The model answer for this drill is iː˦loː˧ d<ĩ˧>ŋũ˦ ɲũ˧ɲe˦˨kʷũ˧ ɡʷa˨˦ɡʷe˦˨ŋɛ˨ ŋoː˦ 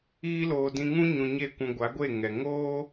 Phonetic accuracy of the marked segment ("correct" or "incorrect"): correct